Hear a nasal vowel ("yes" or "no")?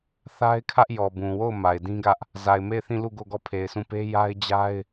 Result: yes